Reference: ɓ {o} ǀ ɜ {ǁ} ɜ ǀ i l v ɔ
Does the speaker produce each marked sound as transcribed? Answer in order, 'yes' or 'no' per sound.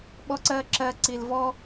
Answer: no, yes

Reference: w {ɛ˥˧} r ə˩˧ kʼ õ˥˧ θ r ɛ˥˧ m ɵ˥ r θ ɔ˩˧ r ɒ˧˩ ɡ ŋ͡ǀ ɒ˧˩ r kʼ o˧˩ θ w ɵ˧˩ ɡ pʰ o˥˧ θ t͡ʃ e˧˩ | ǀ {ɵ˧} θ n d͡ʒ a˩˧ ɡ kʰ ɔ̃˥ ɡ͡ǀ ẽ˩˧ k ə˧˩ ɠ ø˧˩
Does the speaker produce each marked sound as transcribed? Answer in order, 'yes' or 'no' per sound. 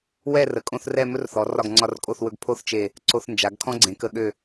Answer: yes, no

